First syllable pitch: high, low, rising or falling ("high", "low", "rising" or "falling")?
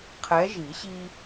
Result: rising